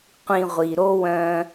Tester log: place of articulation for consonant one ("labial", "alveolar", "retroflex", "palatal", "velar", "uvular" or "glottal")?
uvular